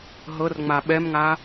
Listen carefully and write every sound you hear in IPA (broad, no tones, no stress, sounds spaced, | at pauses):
ɦ ɤ r ŋ͡m a ɓ ɛ m ŋ a